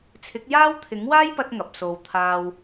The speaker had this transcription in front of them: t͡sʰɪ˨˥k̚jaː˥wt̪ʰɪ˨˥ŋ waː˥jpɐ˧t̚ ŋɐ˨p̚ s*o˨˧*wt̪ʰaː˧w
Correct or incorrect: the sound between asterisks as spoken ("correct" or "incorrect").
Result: incorrect